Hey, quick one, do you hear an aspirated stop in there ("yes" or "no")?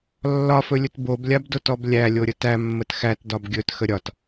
no